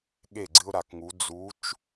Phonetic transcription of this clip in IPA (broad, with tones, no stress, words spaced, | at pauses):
ɠe˦˨ɡ͡ǀɨ˦ʊ̯ɾa˨kŋu˨˦ d͡zu˨˦t͡ʃ